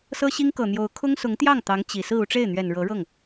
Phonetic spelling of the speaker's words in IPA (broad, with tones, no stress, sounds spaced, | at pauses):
s ɤ˥ ɕ i˥ ŋ k ɤ˨˩ n̪ j o˧˥ ʊ̯ kʰ ʊ˥ ŋ s ʊ˧˥ ŋ t̪ j ɑ˥˩ ŋ t̪ ɑ˧˥ ŋ t͡ɕ i˨˩ s ɹ̩˥˧ u˥˧ ʈ͡ʂ e˥˩ ɪ̯ n̪ ɥ ɛ˨˩ n ɻ ɤ˧˥ ɻ ɤ˥˩ ŋ